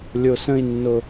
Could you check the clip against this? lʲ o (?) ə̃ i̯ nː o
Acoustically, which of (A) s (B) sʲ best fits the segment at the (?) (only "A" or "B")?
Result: A